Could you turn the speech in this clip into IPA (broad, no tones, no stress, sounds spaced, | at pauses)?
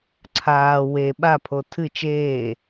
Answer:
ǀʰ aː w e ɓ a pʰ o tʰ ɨ t͡ʃ eː